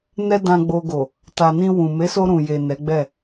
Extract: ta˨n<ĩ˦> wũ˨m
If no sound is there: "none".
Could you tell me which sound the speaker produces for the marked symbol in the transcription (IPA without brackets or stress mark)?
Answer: ĩ˧